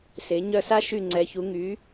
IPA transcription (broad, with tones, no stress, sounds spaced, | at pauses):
s e˩˧ ɲ œ˧˩ s a˥ ʃ y˧˩ ŋ͡ǀ ɛ˩˧ ç u˩˧ ŋ y˩˧